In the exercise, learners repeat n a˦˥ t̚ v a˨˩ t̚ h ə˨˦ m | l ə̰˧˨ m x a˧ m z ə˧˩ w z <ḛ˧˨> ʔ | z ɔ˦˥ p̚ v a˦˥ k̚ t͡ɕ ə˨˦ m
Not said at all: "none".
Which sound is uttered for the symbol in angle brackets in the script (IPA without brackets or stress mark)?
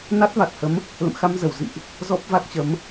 ḭ˧˨